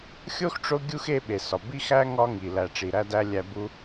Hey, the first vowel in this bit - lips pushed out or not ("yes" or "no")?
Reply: yes